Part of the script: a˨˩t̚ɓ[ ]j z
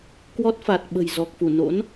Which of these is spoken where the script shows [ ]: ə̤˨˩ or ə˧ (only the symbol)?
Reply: ə̤˨˩